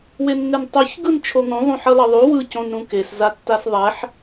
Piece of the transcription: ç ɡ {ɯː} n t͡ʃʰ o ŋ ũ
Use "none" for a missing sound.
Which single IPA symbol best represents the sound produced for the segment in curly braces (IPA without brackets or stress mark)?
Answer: ɯ